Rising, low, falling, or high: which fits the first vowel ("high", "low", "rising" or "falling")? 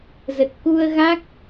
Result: low